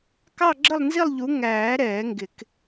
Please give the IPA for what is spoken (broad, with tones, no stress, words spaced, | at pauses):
kɑ˥˧ɡ͡ǁə˥˧lˠnzi˥˧lˠʎu˨˦ ŋæː˨˩˦ ɾɛː˨˩˦ŋɡɪ˨˩˦k